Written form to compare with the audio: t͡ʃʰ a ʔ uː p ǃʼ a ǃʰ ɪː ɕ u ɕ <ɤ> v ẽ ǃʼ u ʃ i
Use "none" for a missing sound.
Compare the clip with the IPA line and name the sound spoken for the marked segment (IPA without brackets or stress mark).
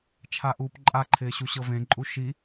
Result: ɤ